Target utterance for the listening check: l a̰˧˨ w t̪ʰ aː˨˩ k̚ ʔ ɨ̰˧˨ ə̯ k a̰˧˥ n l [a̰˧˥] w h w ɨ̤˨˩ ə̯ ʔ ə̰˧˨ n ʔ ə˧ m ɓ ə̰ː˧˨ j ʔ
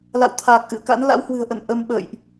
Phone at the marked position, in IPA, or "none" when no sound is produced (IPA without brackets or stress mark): a̰˧˥